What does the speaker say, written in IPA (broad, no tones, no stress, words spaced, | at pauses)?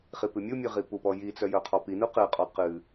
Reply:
χipɨmʲumʲɨ ʁipupɔ jit͡sœ jœqʰɔpinu qɨqʼɔ qɨ